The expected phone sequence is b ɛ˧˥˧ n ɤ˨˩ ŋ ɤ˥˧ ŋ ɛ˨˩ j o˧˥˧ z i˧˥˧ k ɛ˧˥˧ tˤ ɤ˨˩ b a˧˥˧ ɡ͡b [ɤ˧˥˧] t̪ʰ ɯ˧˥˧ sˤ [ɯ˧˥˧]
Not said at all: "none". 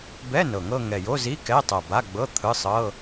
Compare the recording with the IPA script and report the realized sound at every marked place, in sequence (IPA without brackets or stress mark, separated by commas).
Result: ɤ˧˥˧, ɤ˧˥˧